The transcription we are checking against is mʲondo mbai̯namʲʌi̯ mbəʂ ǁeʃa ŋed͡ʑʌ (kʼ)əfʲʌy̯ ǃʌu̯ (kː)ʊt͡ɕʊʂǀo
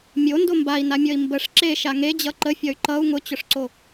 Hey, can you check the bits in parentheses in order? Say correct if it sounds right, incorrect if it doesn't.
incorrect: ǃ, incorrect: ŋ

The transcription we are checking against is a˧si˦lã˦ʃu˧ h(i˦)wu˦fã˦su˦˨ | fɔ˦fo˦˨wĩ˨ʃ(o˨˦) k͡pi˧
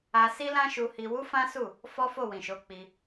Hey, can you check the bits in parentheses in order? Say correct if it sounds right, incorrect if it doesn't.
incorrect: i˧, correct

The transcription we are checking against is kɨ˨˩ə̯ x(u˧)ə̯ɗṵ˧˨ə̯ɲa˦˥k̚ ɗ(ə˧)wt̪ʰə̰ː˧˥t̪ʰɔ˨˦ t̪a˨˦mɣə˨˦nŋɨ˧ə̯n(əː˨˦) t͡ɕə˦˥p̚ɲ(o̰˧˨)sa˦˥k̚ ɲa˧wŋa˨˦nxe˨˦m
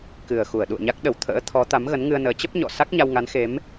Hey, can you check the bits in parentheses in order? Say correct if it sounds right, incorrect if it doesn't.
incorrect: u˧˩, incorrect: ə˧˩, correct, incorrect: ɔ̰˧˨

